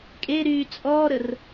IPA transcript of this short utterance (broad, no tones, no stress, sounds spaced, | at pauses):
kʼ e ɾ yː t͡sʼ ɔː ɾ ə r